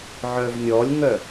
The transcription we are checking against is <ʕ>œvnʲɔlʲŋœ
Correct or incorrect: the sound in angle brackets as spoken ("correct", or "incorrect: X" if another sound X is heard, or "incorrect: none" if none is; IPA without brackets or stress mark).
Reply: correct